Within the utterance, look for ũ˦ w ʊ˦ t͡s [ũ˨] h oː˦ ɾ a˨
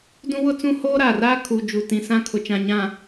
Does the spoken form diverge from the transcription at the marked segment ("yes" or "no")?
yes